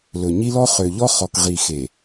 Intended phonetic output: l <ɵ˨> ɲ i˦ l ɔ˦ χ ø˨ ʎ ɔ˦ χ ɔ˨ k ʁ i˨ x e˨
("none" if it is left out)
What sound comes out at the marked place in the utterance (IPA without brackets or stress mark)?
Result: ɵ˨